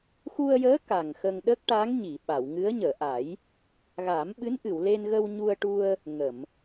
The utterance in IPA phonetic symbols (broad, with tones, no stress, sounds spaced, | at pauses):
x u˧ ə̯ j əː˧˥ k a˨˩ ŋ x ə˧ ŋ ɗ ə˦˥ k̚ ʈ a˧˥ ŋ ɲ i˨˩˨ ɓ a˨˩˨ w ŋ ɨ˧˥ ə̯ ɲ əː˨˩˨ ʔ a˨˩˦ j | ɣ aː˨˩˦ m ɓ ɨ˧˥ n ʔ ɨ˨˩˨ w l e˧ n ɣ ə˧ w ɲ u˧ ə̯ ʈ u˧ ə̯ | ŋ ə˨˩˨ m